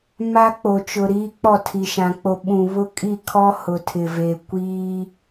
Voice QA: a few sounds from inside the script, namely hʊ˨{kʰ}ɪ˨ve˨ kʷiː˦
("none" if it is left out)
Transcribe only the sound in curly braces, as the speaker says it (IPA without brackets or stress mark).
tʰ